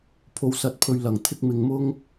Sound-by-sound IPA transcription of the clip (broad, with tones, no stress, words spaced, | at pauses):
pʰo˧wsɐ˧t̚pʰɵ˧ɥ lɐ˨˩ŋt̪ʰɪ˥k̚ mɪ˨ŋmʊ˥ŋ